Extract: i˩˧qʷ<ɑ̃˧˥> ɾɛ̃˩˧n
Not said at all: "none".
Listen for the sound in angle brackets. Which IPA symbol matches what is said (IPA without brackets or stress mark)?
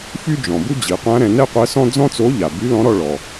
ã˧˥